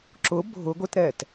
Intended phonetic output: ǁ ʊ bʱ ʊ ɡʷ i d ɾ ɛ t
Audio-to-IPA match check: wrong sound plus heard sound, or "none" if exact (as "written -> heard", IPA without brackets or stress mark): d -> t